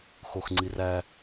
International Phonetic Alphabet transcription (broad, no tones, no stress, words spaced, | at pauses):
xoxŋ͡ǀiræ